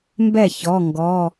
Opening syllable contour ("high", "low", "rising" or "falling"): falling